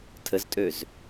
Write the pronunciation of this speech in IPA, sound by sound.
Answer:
tʰəztʼøz

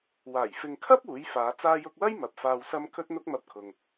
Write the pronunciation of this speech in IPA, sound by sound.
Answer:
waː˨˩j fɪ˨ŋkʰɐ˥p̚ uː˨˥jfaː˨˧ t͡saː˧jʊ˧k̚wɐ˥j mɐ˨p̚faː˧wsɐ˥m kʰɵ˥t̚n̪ʊ˥k̚mɐ˧p̚kʰʊ˨ŋ

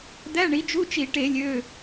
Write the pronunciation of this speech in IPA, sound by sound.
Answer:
d̪æ˧˥˧ɳi˩˥d͡ʒu˧˥˧t͡ʃi˧˩˧ ʈe˧˩˧lʲø˩˧˩

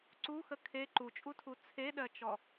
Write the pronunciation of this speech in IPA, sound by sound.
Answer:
ǀuxə kʰe ǃut͡ʃʼutʰu t͡sʰeɗɜt͡ʃɔ

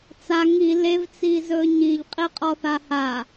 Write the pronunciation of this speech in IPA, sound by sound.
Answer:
t͡sa ŋi levt͡sizɵ ɲiʎqʼiqʼɔθa ha

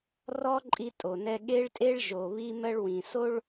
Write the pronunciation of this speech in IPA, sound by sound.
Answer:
rɔ˥ ǃʼi˥tʼo˩nɛ˥ ɠe˥ɭtʼe˥ɭ ʒo˩βi˥mɜ˥ɭwĩ˩ so˥ɭ

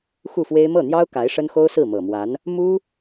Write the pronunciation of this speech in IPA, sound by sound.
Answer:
xu˥˩fwe˥ɪ̯ mɤ˥˩n̪jɑ˥ʊ̯ ka˧˥ɪ̯ʂə˥nxo˥ʊ̯sɹ̩˥˩ mɤ˨˩mwa˧˥n | mu˥

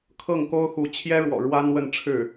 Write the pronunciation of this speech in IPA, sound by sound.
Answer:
kʰɤ˥˩ŋko˥ʊ̯xu˧˥ t͡ɕʰjɛ˥ɻwɔ̰˨˩ ɻwa˥nwə˥˧nʈ͡ʂʰɻ̩˥˩

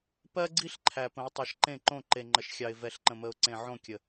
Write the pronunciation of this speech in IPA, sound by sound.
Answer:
pɜ˦ɡ͡ǀi˦ɬ ǃʰæ˨pə̃˨˦ʊ̯ tˤɜ˨ʃǃẽ˦˨ǃõ˦˨ ǃe˨ŋ͡ǃə˨ʃxʲɑ˨ɪ̯ vɛ˨ɬǃə̃˨mə˨ʊ̯ ǀẽ˨ ʕõ˦˨kʲə˨

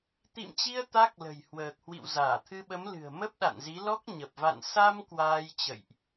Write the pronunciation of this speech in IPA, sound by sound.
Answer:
t̪ḭ˧˨mt͡ɕi˧ə̯ t̪a˦˥k̚lə̤˨˩j hwəː˨˩k̚hwḭ˧˨w zaː˧˩t̪ʰɨ˧ɓə˨˦mlɨ̤˨˩ə̯ mə˦˥p̚ɗa̰˧˨nzi˨˦ lɔ˦˥k̚ɲə˨˩p̚ va̰˧˨n sa˧m kwaː˧jt͡ɕə̰˧˨jʔ

